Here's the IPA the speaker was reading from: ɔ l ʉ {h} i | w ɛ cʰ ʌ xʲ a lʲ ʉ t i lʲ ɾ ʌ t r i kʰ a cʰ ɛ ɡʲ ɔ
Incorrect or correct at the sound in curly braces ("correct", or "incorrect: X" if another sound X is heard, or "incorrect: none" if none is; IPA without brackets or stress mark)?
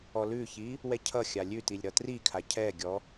incorrect: ç